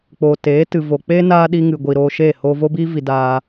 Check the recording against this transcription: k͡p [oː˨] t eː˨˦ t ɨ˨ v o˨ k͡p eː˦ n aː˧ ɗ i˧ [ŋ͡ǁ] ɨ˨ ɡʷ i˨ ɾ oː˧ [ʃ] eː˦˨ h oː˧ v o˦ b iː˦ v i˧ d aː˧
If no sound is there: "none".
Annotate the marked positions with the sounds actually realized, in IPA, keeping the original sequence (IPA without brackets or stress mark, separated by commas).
oː˨, ŋ, ʃ